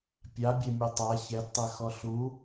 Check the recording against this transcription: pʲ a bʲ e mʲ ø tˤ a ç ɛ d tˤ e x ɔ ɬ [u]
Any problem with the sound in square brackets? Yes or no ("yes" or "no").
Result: no